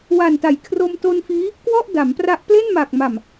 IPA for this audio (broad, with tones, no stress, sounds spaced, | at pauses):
w a˨˩ n t a˩˦ j kʰ r o˧ m t o˧ n f iː˦˥ | k w ɔ˥˩ ʔ d a˩˦ m p r a˦˥ ʔ p l e˥˩ n m aː˨˩ k̚ m a˨˩ m